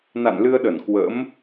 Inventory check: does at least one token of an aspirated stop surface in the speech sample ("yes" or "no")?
no